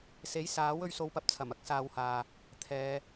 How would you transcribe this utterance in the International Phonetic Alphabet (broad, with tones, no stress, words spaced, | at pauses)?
se˨˥jsaː˨˥w ɵ˧ɥso˧wpɐ˧p̚t͡sʰɐ˨˩m ɐ˥k̚saː˧whaː˨ | t̪ʰɛː˨˧